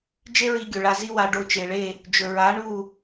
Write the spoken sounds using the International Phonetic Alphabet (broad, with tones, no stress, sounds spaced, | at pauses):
d͡ʒ e˦ ɹ i˧ ɡʲ ɵ˨ ɭ a˧ z i˦ w a˧ ɖ o˧ t͡ʃ e˨ ɭ e˦˨ | d͡ʒ ɵ˨ ɹ a˨˦ ɳ u˦˨